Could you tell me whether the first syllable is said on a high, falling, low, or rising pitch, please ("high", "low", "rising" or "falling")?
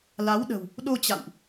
rising